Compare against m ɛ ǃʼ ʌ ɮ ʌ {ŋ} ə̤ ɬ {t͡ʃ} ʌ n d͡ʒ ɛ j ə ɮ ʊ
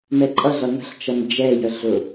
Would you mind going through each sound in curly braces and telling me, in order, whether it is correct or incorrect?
correct, correct

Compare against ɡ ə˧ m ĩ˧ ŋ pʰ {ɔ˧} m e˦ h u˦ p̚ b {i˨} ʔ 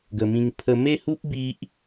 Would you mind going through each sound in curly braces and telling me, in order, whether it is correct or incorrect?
incorrect: ə˧, incorrect: i˦

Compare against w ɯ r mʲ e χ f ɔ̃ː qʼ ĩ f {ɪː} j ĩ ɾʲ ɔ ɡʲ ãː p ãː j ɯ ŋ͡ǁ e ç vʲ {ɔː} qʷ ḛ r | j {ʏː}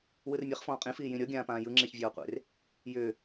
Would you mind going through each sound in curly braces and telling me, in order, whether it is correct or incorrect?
incorrect: iː, correct, correct

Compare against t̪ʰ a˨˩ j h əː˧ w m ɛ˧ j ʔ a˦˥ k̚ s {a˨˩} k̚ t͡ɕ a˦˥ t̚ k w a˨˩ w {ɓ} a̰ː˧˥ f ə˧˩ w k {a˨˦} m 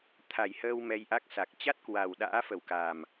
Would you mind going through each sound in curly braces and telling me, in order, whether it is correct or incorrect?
correct, incorrect: ɗ, incorrect: a˨˩

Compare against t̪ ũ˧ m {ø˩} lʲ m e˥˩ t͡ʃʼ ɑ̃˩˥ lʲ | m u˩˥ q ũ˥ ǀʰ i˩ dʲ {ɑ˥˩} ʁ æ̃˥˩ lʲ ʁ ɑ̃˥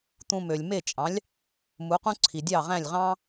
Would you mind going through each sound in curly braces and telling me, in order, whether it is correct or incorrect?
correct, correct

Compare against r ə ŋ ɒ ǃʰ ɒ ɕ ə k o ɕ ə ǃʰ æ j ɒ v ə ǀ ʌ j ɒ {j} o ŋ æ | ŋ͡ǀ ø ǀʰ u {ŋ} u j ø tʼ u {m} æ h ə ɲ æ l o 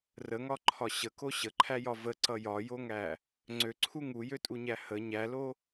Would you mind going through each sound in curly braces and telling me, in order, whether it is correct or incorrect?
correct, correct, incorrect: ɲ

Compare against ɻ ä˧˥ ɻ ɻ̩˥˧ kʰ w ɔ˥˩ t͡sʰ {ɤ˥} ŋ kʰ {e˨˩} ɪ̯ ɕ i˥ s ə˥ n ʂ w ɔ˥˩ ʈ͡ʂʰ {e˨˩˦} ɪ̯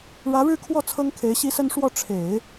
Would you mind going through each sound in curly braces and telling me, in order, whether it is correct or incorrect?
correct, incorrect: e˧˥, correct

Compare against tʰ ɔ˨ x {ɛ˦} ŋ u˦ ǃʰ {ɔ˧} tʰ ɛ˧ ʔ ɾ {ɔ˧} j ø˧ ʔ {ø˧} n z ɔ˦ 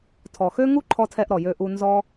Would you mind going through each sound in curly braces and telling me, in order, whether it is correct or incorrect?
incorrect: ø˦, correct, incorrect: ɔ˨, incorrect: u˧

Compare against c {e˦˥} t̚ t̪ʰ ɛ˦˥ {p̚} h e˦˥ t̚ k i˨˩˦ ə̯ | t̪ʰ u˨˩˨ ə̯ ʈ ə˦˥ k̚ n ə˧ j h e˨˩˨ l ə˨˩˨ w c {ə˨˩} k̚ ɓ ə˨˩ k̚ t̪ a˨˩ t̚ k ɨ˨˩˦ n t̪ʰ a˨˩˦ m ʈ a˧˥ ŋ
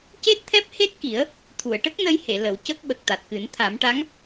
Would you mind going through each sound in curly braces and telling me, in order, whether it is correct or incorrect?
correct, correct, incorrect: ə˦˥

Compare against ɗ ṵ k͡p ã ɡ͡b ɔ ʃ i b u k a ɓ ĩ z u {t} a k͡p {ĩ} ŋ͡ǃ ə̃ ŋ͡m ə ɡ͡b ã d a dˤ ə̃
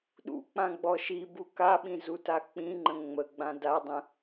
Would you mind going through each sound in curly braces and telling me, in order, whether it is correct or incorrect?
correct, correct

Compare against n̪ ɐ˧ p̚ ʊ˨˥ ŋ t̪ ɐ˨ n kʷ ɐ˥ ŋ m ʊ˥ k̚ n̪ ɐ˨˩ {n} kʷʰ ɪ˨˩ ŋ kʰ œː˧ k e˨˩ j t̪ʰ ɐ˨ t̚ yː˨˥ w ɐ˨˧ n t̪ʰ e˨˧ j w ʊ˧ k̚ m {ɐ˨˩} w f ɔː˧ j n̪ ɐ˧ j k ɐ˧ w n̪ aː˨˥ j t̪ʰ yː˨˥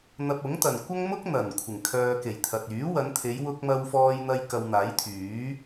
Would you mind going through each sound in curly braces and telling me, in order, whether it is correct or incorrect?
correct, incorrect: ɐ˧

